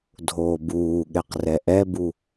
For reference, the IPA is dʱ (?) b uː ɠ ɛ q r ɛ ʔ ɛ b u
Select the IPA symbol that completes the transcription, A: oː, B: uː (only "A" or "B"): A